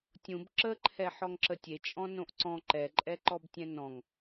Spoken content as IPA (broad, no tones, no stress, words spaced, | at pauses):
tʲũb ǁəǃʰɛ ħɔŋǁətʲet͡ʃʼɔ̃ nõʔǀɔ̃ ǃɛǃʼɛ ǃɔbtʲɛ̃nɔ̃ŋ